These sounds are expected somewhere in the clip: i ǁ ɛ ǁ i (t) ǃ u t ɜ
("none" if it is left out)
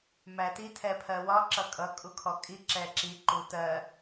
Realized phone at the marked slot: none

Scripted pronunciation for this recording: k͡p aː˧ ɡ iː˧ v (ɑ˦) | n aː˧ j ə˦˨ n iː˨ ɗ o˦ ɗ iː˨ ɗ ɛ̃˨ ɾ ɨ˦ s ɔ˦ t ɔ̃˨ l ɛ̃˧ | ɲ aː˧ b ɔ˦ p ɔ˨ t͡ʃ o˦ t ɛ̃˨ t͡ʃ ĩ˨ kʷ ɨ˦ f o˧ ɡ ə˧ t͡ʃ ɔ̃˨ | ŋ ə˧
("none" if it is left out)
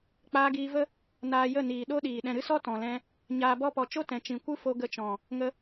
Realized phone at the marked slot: ə˦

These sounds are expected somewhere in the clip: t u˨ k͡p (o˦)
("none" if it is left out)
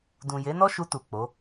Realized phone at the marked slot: o˨˦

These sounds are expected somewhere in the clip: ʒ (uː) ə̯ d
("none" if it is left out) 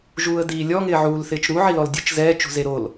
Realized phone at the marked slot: uː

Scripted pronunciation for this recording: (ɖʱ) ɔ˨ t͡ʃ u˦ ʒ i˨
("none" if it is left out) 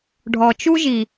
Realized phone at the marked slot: ɖʱ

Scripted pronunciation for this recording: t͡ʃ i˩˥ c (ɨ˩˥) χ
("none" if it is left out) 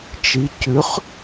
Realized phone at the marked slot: ʉ˩˥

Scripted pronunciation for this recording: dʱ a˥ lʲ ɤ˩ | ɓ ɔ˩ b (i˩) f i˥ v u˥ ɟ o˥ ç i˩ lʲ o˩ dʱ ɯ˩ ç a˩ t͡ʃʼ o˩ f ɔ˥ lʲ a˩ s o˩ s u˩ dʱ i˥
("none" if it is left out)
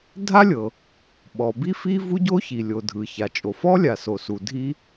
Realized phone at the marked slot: i˥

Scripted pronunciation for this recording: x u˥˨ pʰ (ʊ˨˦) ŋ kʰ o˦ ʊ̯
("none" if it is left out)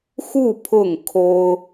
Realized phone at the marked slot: ʊ˥˨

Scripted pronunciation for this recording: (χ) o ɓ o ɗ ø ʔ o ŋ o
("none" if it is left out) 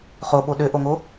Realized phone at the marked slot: χ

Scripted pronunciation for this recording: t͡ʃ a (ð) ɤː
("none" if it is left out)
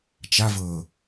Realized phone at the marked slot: v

